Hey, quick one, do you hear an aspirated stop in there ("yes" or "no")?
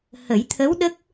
yes